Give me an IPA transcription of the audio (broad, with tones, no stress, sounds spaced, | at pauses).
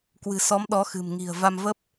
k w ɨ̤˨˩ s ɔ˨˦ m ɗ ɔ˨˦ x ɨ̤˨˩ m ŋ i̤˨˩ ə̯ v a˧ m v ə˦˥ p̚